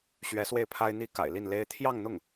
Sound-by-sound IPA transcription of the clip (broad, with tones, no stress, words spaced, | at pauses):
ɕɥɛ˧˥ swe˥˩ɪ̯pʰa˥ɪ̯n̪i˥ ka̰˨˩ɪ̯li˥˩nle˥ɪ̯ t̪ʰjɑ˥˧ŋn̪ʊ˥˩ŋ